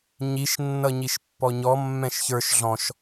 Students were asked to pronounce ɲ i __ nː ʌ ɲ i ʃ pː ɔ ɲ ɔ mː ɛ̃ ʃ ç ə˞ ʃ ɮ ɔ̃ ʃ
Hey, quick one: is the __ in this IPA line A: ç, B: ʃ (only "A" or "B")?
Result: B